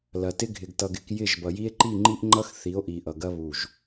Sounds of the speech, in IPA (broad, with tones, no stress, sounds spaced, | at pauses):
l ɐ˨ t ɪ˦ ɡʱ ɪ˨ ɡ t ʌ˨ ɡ ɪ˨˦ k j ɪ˦˨ ʒ b ʌ˨ j i˦ e̯ ǃ i˦˨ ŋ͡ǃ i˦ ʔ ŋ͡ǃ ʌ˦ x θ i˨˦ o̯ ʔ i˨ ʔ ʌ˨ ɡ ɐ˦ β u˦˨ ʒ